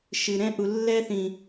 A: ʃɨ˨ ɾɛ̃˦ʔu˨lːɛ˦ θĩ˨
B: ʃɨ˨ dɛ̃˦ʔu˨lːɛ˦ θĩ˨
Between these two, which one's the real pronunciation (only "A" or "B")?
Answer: A